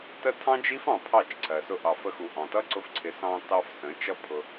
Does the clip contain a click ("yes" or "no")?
yes